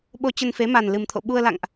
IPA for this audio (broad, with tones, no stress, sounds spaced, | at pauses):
ɓ o˧ t͡ɕ ə˧ n f e˨˦ m a˨˩ n l ɨ˨˩ m t̪ʰ o̰˧˨ ɓ u˧ ə̯ l a̰˧˨ ŋ ʔ